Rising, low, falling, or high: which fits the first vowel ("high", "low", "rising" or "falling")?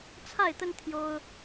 falling